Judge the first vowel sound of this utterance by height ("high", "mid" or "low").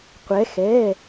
mid